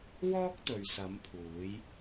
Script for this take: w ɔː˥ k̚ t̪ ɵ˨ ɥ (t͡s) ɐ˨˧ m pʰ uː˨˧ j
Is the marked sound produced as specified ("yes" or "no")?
no